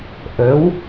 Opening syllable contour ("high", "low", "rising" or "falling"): rising